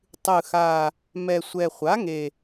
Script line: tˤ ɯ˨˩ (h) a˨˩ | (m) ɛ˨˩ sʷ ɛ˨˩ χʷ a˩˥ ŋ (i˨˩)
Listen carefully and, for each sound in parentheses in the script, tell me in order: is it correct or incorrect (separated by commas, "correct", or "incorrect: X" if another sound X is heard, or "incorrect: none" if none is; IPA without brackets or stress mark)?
incorrect: x, correct, incorrect: e˨˩